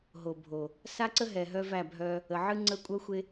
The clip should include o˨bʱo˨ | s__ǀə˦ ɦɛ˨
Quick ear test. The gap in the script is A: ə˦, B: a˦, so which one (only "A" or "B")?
B